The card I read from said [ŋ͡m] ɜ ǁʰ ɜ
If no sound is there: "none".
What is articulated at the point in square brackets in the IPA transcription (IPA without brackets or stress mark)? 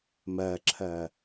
m